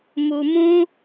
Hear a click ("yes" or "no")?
no